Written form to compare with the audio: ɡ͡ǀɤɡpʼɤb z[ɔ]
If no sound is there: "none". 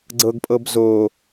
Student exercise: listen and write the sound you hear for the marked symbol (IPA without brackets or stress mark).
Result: o